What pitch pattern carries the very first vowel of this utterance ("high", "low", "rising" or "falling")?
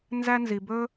high